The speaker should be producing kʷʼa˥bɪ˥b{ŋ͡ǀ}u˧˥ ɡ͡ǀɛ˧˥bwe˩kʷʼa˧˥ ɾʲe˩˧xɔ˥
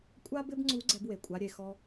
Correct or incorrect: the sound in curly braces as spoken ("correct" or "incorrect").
correct